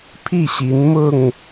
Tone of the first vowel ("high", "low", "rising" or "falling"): falling